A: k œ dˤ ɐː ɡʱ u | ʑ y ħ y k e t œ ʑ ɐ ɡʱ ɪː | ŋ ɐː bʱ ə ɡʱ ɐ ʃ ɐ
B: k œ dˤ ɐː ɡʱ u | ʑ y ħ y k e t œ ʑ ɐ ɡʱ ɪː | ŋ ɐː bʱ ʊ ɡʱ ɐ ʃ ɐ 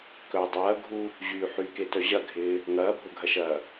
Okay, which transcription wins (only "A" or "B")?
B